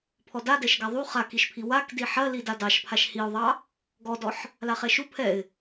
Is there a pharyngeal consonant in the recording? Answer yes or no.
yes